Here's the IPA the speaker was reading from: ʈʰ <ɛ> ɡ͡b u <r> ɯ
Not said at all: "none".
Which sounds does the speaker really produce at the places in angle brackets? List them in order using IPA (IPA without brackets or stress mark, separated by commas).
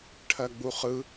ɜ, χ